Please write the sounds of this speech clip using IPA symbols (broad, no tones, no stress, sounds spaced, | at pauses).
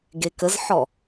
ɡ e k ə z ħ ɔ